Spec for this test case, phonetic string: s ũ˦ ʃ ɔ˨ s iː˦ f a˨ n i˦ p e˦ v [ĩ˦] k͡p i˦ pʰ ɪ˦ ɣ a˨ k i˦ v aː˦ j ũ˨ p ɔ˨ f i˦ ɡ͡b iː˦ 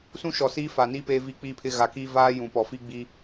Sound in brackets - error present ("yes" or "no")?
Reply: yes